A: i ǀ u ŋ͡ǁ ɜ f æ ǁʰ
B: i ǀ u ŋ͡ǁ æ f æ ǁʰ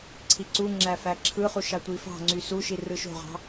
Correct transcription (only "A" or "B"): B